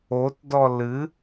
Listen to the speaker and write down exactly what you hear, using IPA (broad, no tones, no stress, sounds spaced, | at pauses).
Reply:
o t d ɔ l ɨ